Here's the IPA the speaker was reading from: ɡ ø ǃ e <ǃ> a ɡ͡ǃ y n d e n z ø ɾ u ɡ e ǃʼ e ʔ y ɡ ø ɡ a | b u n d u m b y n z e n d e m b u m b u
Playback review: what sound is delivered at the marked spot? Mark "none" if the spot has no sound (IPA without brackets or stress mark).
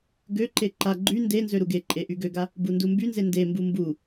ǃ